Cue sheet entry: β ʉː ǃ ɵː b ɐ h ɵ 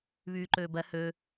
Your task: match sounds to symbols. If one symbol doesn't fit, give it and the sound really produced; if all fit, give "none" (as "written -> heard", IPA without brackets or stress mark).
none